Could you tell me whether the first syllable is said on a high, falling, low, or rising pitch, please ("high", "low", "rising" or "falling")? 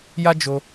high